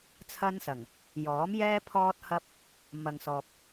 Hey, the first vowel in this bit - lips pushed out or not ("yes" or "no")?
no